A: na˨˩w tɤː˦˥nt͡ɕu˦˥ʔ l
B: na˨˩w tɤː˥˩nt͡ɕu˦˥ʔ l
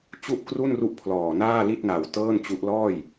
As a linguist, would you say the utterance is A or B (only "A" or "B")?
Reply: B